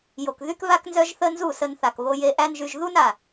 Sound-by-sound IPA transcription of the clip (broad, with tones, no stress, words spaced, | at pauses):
jo˨kðy˦kβa˦k nzœ˦ʒθə˦ nzu˦˨sə˧nθa˨k βo˧je˧ʔæ˦nʒy˧ʒ ðu˦na˨